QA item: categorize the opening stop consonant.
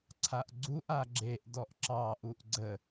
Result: click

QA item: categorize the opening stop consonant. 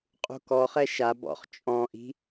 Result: ejective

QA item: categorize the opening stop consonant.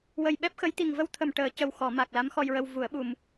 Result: implosive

